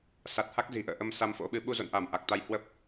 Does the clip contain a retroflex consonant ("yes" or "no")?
no